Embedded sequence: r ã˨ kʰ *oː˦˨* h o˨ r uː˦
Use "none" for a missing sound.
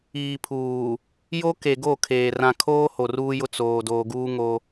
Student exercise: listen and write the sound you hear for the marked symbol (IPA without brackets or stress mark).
oː˦